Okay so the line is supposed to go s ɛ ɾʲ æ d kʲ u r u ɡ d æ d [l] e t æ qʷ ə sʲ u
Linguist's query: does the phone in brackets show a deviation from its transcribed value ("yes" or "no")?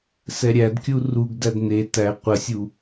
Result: yes